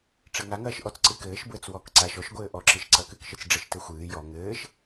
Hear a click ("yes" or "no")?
yes